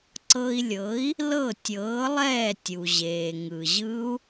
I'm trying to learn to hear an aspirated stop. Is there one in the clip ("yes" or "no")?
no